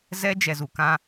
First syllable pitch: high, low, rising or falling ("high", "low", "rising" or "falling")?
high